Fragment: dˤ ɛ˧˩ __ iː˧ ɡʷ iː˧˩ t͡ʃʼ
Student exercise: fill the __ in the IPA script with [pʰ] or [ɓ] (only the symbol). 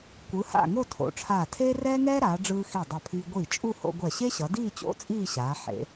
pʰ